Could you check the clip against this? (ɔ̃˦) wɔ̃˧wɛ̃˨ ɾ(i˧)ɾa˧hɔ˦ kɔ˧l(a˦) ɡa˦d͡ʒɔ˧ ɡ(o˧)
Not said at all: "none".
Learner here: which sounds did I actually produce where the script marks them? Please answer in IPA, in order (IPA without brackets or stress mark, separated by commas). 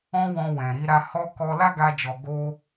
ɔ̃˦, i˧, a˦, o˦